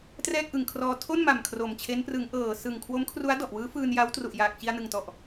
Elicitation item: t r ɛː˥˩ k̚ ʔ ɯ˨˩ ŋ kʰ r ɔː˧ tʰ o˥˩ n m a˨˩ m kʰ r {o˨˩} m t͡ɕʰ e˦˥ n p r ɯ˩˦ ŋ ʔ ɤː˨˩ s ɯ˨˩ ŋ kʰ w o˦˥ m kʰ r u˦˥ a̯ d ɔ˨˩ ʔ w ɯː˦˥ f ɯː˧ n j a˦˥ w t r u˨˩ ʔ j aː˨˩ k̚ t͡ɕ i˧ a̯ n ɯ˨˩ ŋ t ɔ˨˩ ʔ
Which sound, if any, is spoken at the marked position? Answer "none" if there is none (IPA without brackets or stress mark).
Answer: o˨˩